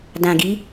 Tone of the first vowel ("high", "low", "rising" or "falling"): low